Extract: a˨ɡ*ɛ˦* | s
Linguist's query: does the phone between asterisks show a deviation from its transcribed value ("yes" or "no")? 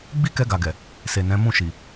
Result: yes